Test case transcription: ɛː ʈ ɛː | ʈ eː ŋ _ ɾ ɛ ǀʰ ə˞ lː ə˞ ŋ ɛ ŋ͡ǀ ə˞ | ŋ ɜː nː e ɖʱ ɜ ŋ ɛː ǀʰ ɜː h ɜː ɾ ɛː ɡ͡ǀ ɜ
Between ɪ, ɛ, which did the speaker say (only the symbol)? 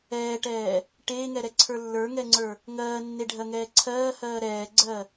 ɛ